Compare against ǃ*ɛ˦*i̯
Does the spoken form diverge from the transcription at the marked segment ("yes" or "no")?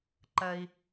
yes